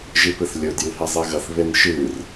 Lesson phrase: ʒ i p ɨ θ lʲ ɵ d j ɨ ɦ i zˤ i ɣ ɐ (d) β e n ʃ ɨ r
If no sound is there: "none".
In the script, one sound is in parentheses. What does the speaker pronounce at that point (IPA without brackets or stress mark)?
θ